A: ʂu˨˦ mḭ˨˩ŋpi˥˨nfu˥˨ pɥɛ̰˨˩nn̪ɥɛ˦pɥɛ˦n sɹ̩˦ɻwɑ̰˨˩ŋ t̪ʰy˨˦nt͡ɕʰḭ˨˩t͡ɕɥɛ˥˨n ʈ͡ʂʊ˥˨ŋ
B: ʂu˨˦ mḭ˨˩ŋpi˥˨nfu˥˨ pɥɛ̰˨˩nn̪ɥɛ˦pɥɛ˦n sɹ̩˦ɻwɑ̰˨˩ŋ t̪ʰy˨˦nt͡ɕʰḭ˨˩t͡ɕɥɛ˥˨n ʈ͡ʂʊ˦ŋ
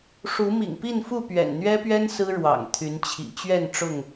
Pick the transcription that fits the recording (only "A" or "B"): A